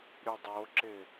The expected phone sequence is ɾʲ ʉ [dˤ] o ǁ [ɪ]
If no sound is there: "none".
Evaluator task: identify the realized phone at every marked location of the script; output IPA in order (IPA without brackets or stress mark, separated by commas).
dˤ, ɪ